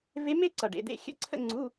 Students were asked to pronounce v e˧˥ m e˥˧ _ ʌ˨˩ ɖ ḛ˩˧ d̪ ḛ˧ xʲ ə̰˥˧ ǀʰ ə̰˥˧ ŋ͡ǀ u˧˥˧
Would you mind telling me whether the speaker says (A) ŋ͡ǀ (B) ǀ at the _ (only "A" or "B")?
B